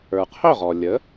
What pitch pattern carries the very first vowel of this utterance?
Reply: low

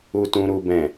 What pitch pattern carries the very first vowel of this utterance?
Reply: low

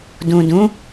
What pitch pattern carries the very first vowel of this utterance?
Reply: low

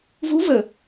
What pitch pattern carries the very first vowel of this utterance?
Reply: rising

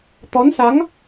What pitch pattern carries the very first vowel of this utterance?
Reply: rising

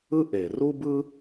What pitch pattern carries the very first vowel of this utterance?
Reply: high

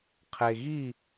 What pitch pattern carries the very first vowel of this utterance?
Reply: low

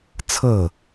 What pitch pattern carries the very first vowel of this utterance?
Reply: falling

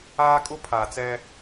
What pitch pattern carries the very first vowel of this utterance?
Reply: high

